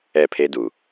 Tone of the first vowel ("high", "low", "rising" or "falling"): falling